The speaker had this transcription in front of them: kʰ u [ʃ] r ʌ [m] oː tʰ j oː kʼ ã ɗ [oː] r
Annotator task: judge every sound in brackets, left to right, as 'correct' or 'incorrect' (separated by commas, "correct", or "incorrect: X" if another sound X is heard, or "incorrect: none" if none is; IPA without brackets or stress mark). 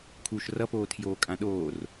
correct, incorrect: p, correct